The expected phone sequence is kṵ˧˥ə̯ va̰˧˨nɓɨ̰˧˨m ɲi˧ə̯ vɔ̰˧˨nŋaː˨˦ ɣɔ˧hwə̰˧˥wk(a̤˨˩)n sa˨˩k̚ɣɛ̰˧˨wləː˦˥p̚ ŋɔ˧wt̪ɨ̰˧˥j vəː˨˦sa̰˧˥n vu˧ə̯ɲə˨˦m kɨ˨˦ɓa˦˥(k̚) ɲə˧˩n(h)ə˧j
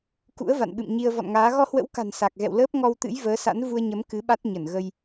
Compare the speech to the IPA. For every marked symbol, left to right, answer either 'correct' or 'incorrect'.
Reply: correct, incorrect: t̚, incorrect: ɣ

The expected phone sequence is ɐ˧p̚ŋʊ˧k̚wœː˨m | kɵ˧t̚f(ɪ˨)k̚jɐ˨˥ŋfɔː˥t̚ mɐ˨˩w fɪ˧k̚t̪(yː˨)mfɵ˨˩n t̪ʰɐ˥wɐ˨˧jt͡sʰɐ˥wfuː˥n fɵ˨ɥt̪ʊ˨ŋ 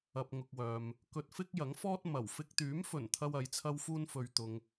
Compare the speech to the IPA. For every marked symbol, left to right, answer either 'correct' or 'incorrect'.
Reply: incorrect: ɪ˥, incorrect: yː˨˥

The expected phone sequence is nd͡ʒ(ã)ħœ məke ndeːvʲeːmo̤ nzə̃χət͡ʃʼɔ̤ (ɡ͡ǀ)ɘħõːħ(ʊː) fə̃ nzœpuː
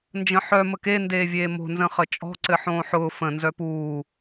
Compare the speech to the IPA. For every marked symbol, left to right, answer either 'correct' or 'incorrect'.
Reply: incorrect: ə̃, incorrect: ǀ, correct

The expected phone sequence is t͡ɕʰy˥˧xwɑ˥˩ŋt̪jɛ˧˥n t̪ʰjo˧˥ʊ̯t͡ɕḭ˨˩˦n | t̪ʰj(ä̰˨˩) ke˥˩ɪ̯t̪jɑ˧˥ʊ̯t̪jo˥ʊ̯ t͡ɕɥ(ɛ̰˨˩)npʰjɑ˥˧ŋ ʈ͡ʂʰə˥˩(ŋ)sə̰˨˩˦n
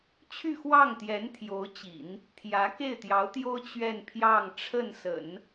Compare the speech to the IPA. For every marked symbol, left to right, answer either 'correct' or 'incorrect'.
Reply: incorrect: ä˧˥, incorrect: ɛ˥˧, incorrect: n

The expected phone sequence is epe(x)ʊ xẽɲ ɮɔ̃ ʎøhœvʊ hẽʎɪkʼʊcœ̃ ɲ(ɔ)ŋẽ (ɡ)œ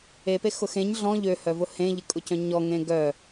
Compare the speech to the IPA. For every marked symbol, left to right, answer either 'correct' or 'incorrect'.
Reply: correct, correct, correct

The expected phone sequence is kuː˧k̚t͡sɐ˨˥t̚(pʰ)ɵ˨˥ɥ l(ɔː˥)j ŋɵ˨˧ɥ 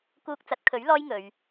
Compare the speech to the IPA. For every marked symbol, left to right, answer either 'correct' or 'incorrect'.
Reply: incorrect: kʰ, correct

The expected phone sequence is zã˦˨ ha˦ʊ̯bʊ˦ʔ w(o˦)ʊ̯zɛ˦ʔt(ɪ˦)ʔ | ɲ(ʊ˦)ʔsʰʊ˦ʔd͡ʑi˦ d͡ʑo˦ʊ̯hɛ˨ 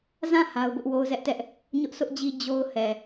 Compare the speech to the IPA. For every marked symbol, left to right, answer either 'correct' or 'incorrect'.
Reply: correct, incorrect: ɛ˦, correct

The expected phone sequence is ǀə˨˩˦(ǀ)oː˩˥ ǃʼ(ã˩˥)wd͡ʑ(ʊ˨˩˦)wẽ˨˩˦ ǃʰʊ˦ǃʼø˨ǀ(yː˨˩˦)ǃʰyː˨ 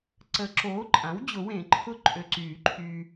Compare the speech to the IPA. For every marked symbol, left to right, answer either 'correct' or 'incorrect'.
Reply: incorrect: ǁ, correct, correct, correct

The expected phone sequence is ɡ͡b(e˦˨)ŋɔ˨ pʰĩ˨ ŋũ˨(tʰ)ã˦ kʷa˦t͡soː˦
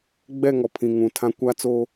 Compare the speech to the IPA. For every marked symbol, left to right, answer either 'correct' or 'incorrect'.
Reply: incorrect: ɛ˦˨, correct

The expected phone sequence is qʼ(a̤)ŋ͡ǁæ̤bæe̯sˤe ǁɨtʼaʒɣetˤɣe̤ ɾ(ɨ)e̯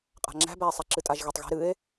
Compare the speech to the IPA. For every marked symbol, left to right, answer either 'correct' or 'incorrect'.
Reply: correct, correct

